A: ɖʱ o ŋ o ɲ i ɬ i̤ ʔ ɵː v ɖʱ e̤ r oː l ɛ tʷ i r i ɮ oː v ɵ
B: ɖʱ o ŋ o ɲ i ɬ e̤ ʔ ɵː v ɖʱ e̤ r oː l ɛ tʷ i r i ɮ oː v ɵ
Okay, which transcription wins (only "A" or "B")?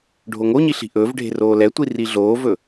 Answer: A